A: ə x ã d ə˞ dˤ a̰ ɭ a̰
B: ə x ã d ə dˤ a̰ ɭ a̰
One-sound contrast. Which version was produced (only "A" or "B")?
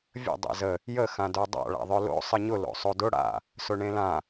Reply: A